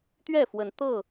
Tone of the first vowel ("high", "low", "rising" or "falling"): falling